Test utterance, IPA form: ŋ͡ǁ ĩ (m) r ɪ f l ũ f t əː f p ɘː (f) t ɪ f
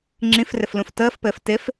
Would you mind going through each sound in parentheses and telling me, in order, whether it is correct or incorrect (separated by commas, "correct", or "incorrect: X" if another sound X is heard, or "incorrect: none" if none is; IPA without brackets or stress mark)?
incorrect: f, correct